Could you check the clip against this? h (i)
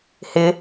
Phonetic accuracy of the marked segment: incorrect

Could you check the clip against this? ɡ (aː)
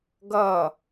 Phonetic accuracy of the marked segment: incorrect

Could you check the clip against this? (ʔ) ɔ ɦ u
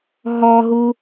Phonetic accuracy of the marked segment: incorrect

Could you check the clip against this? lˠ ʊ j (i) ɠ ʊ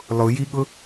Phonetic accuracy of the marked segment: correct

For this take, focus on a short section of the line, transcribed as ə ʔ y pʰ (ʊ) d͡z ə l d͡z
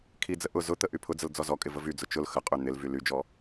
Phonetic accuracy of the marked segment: correct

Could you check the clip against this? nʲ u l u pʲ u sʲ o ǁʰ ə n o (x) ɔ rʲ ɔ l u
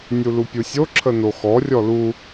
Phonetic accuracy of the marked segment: correct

